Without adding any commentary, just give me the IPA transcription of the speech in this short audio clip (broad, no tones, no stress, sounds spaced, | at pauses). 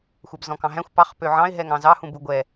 xʷ ɛ b z ɔ̃ k ɑ̃ ɦ æ̃ xʷ p ɑ χ p ø ʕ ɑ̃ ɪ̯ ɦ ɛ ŋ ɑ̃ z ɑ h ũ b u ɡʷ ɛ